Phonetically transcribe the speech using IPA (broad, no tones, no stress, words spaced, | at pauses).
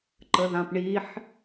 ǃəðãpɳiħ